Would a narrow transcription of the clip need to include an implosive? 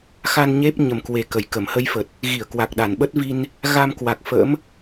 yes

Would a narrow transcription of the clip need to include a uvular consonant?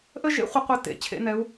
yes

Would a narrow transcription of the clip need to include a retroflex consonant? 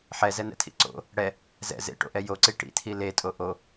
yes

